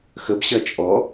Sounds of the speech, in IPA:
x ə b ɕ ɐ t͡ʃʼ ɔ

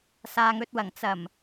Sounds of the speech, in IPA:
s aː˨ ŋ ɵ˧ t̚ w ɐ˨˩ ŋ t͡s ɐ˨˩ m

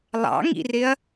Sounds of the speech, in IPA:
lˠ ɑ̰ ŋ ḭ r ɪ ɐ̯

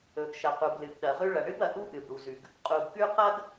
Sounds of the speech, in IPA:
ɵ˩ ɡ ʃ ɐ˩ q u˩ b l ɨ˩ ɡ ɗ ɐ˩ ʁ ʉ˥ ɭ ɐ˩ ɳ ɨ˥ b ɐ˩ ʔ u˥ ʔ ɨ˩ b ɽ u˩ z ʉ˩ ɡ | qʼ u˩ ɡ k ʉ˥ q ɐ˥ ɡ

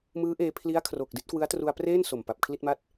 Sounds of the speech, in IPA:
m ɯː˦˥ ʔ eː˧ pʰ l i˦˥ a̯ kʰ r o˨˩ k̚ d i˥˩ t̚ k w ɯ˦˥ a̯ t r u˧ a̯ p r eː˥˩ n s o˨˩ m p a˨˩ p̚ kʰ l i˥˩ t̚ m a˥˩ t̚

